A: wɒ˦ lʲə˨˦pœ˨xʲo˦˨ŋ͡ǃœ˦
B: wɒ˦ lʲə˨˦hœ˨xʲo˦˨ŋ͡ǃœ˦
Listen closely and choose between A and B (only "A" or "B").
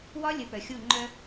A